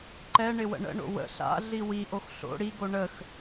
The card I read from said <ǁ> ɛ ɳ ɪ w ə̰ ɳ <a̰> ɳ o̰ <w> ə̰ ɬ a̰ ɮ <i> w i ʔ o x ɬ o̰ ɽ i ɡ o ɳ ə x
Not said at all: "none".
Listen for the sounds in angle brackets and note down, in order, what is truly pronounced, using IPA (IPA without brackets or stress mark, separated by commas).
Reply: ǃ, ə̰, w, i